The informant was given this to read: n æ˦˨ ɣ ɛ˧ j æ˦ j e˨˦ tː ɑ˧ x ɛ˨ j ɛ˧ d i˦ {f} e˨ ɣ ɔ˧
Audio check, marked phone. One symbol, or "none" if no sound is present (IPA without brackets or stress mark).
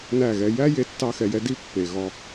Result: pː